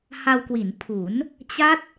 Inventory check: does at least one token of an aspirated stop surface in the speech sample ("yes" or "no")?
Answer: yes